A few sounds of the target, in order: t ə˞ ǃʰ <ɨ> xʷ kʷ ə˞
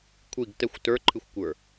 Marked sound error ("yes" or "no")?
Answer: no